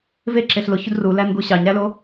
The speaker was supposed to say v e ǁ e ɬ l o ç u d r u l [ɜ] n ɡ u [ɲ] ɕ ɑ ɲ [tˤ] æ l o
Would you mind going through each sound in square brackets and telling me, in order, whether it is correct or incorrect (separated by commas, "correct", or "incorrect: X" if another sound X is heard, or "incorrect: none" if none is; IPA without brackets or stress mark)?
incorrect: æ, incorrect: none, incorrect: ɾ